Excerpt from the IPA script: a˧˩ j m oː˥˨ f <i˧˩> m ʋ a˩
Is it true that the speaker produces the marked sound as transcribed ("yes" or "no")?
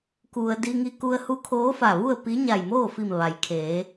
yes